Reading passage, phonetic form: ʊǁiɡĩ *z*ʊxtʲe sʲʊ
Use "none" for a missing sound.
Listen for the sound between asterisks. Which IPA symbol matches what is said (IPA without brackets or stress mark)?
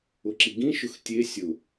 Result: ʃ